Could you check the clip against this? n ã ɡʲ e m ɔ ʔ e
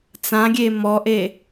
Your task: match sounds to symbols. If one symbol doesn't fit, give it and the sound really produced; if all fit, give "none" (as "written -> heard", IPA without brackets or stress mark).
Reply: n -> t͡s